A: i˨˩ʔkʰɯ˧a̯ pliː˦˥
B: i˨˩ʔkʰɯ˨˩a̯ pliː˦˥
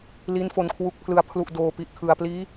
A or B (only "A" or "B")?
B